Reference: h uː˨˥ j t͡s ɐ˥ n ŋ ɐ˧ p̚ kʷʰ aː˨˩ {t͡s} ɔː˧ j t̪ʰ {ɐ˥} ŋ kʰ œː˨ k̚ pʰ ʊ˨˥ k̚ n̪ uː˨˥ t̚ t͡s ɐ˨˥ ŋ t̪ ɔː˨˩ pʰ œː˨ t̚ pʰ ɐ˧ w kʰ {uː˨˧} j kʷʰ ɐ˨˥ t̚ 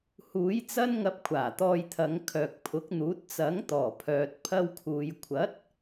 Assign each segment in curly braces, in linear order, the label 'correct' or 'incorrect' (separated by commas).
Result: incorrect, incorrect, incorrect